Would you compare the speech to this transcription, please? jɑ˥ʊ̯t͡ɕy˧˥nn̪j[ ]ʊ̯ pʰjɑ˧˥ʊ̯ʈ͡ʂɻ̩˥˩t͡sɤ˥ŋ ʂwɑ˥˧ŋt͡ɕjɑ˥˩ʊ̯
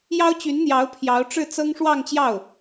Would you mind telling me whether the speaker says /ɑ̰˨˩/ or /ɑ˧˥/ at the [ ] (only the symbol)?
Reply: ɑ˧˥